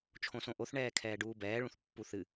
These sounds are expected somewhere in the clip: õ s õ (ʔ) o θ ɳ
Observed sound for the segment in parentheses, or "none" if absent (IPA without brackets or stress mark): ʔ